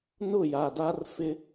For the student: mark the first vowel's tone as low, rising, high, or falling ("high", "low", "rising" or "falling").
falling